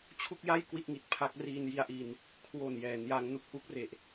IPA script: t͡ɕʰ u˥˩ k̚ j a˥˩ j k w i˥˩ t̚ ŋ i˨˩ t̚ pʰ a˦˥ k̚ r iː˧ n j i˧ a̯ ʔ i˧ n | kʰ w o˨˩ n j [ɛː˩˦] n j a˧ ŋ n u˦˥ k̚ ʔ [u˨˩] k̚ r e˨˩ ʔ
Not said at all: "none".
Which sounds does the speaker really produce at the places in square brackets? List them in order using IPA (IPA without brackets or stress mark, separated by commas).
ɛː˩˦, u˦˥